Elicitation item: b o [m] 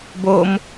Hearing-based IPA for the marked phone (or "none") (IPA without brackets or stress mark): m